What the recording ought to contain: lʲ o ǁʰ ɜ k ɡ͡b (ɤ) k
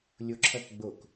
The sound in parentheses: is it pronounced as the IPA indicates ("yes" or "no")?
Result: no